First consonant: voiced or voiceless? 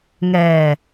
voiced